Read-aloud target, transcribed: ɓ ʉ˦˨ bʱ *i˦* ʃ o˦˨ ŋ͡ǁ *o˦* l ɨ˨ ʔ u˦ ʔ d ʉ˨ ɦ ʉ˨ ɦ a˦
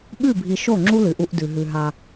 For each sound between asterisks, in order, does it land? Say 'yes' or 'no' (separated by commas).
no, no